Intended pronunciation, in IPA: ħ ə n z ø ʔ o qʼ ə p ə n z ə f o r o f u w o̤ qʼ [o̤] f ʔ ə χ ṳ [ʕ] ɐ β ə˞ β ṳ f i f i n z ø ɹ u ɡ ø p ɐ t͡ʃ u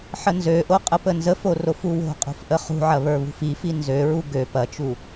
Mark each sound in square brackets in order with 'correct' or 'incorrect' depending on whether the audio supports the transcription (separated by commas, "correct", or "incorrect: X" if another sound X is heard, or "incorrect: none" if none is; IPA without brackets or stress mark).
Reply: correct, correct